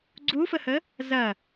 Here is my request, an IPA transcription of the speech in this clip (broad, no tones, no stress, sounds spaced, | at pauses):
ɡ͡ǀ u f ə h ə | z ɐ